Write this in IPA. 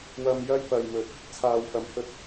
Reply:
wɐ˧mjɐ˥jpɐ˨j mɵ˨t̚ | t͡sʰaː˨wfɐ˨m hɵ˧t̚

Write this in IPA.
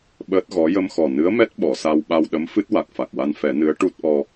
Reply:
ɓəː˦˥t̚ɣɔ˧˥ jə˧mxɔ˨˩nɨ˧˥ə̯mɛ˦˥t̚ ɓɔ˨˩˨sa˧wɓa˧wɗə˧˥m fɨ˦˥t̚wa˨˩k̚fa˨˩k̚wa˧n fɛ˨˩˦nɨ˧˥ə̯ ʈu˦˥t̚ʔɔ˧

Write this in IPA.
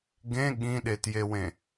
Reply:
ɡẽ ɠĩɗetjewẽ

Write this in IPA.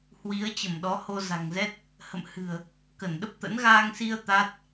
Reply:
hwi˨˦ə̯t͡ɕə˧˩m ɗɔ˨˦ho˧za̤˨˩ŋzɛ˦˥t̚ | hə̰˧˨mhɨ̤˨˩ə̯ | kə˧˩nɗə˦˥p̚t̪ə̰˧˥n ɣaː˧ŋsi˧ə̯ t̪a˦˥t̚

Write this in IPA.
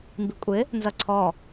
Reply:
mbikʷʼɪ | nzʌǀʰɔ

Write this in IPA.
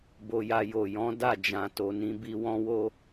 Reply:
bo˧ja˧ jo˨jɔ̃˨˦ da˦˨d͡ʒã˨to˨ nĩ˨˦bi˧ wɔ̃˦wo˦

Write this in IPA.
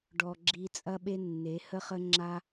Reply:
ɖɔ˨ ɡ͡ǁi˧t͡sʼɐ˦ɓe˦nːe˨˦ hə˧χə˧ ŋ͡ǁa˧

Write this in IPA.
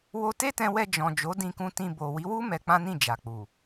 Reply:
wo˧te˦tɛ̃˧wɛ˧ d͡ʒɔ̃˨ d͡ʒo˨˦dĩ˧kũ˧ tĩ˧ bo˨ wi˨˦wu˦ mɛ˧k͡pã˦nĩ˦˨ d͡ʒa˨k͡pu˨

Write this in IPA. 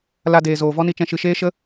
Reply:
la˧deː˨zoː˨ vɔ˦ni˧t͡ʃɛ̃˧ ʃɨ˨ʃeː˦ ʃə˦

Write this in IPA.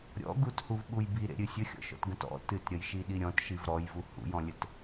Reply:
ɾʲɔ̰ ɡuthuvɓuj biɾḛɾʲɨ sʲəxʲɔ̰ʃɔ̰tɡə̃t ɔ̰ tɨtɾʲəjʃiɗi ɾʲɔ̃tʃiv ɾɔjvu hṵjɔ̃lʲət

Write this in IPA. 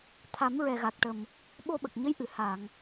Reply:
t̪ʰa˨˩˦mɹɛ˨˩ɣa˨˩k̚ʈə˨˩m | ɓo˧ɓə˨˩k̚ɲə˧˥jʔɨ˨˩˨ ha˨˩˨ŋ

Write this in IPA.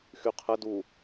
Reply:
xyqʰə du

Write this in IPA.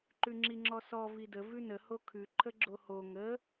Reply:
ǃʉŋ͡ǁiŋ͡ǁɔsɔ vidə vʉnə hokʰʉ ǃʰəɡ͡ǁoho ŋə

